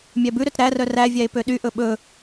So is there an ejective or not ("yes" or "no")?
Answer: no